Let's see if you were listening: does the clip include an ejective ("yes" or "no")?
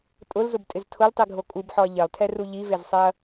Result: yes